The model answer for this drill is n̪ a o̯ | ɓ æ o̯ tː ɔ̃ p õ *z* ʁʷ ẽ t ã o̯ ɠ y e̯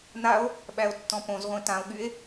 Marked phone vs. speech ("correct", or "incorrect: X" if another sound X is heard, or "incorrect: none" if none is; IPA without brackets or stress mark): correct